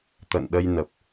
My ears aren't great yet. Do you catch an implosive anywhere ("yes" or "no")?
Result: yes